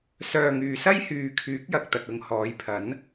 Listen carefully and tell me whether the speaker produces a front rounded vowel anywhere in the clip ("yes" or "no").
yes